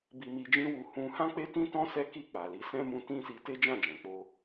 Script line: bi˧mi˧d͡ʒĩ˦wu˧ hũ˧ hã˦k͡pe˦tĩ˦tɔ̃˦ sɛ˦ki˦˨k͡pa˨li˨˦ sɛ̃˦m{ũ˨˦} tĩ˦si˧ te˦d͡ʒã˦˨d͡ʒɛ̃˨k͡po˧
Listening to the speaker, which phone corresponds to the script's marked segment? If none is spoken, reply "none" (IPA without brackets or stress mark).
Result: ũ˧